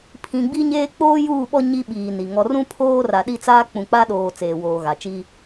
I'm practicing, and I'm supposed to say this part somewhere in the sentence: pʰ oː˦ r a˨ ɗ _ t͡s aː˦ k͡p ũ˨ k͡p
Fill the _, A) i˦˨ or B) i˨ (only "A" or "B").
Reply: A